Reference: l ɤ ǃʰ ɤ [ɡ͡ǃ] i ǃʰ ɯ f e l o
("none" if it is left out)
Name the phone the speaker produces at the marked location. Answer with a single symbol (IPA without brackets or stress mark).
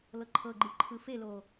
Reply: ɡ͡ǃ